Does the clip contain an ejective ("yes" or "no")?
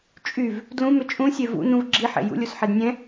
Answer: yes